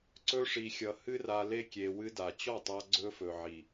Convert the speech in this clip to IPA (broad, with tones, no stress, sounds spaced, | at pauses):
ǀ ɵ˦ ʂ i˧ xʲ ʌ˧ h ɨ˦ r a˧ l e˧ kʲ e˨ w ɨ˧ d a˨ t͡ɕ ɔ˦˨ tˤ a˧ ɡ͡ǀ ɵ˧ f ɵ˨ ʕ i˨